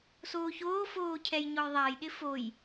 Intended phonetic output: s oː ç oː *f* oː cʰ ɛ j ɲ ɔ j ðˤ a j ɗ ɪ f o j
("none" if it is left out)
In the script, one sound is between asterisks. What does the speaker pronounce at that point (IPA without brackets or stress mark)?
f